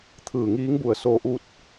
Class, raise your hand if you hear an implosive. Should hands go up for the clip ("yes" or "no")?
no